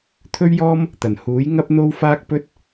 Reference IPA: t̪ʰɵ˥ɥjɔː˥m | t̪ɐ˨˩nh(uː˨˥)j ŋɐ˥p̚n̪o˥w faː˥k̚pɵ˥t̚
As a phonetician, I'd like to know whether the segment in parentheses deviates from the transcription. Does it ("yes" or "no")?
no